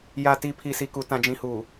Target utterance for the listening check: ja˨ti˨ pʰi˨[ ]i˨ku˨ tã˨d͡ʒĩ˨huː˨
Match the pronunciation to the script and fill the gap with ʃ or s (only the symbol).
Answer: s